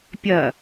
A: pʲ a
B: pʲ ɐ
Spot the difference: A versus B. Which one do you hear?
B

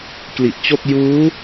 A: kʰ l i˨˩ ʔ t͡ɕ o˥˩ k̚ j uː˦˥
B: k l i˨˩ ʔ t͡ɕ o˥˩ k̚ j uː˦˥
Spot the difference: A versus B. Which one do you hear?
B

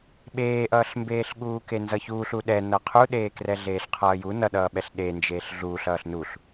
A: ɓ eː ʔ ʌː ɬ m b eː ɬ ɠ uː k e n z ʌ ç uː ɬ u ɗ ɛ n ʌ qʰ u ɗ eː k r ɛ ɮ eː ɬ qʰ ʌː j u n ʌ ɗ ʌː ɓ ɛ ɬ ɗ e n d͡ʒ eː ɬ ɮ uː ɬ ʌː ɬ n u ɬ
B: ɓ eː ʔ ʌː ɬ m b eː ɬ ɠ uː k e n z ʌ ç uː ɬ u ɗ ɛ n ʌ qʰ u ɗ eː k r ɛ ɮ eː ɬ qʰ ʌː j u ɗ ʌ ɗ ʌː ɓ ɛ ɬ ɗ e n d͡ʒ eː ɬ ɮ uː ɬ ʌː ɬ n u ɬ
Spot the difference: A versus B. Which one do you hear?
A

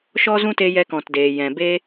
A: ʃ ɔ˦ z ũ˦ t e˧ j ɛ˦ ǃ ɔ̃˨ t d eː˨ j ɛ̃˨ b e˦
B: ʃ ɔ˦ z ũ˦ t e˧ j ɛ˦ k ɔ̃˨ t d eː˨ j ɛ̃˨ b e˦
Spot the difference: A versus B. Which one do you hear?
B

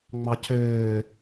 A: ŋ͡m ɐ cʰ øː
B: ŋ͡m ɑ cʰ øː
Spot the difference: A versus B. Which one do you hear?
B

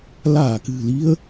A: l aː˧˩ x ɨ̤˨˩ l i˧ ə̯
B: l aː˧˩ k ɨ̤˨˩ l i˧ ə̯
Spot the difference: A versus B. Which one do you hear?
B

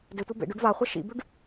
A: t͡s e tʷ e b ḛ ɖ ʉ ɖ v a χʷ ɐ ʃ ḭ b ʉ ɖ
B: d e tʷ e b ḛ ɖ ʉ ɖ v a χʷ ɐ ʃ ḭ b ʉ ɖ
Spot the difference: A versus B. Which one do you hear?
B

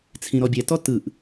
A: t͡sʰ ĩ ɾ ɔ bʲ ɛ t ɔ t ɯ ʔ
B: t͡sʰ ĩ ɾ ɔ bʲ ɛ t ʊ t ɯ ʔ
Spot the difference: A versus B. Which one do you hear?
A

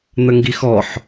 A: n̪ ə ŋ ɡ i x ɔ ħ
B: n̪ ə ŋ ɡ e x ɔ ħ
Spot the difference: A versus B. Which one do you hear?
A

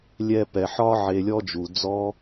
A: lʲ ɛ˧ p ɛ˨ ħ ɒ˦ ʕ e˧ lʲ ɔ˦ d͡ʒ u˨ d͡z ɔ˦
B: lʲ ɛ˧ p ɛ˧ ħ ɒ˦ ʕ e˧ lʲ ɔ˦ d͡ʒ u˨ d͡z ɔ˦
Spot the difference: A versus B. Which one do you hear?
A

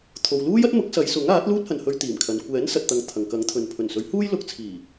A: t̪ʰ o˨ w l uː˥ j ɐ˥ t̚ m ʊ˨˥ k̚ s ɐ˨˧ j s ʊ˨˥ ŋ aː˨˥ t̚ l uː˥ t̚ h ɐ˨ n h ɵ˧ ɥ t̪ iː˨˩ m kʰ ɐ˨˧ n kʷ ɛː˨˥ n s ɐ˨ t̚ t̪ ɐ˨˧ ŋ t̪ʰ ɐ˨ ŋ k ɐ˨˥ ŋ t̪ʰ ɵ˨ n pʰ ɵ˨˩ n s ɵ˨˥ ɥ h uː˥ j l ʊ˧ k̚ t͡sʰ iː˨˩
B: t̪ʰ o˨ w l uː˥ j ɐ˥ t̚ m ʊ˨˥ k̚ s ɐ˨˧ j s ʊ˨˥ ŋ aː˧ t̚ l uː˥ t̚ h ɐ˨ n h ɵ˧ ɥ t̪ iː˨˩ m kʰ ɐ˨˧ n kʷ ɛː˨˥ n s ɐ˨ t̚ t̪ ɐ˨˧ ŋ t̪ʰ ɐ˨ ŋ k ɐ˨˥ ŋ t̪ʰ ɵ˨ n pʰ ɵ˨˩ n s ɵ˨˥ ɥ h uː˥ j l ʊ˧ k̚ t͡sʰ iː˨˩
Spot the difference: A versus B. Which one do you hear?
A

